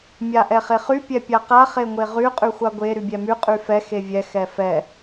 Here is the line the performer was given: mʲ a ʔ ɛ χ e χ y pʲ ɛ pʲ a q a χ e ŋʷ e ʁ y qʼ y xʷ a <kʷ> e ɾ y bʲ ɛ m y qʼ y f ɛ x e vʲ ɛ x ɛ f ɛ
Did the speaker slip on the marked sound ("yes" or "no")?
yes